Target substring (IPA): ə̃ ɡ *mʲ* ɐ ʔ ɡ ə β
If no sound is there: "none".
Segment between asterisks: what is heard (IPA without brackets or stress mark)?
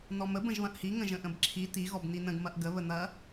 m